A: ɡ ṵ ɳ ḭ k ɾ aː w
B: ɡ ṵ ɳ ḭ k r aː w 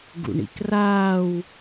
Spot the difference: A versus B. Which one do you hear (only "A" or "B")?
B